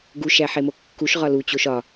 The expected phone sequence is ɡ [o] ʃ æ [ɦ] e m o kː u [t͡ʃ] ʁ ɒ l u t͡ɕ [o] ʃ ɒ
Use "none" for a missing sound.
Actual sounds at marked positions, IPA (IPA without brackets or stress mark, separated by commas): u, ħ, ʃ, o